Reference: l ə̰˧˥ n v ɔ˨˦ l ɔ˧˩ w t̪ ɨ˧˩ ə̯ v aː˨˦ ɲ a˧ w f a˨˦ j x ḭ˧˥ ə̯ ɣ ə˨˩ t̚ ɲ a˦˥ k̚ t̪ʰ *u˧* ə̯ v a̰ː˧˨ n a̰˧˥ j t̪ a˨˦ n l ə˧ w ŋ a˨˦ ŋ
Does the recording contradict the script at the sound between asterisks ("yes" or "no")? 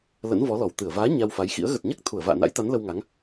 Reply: yes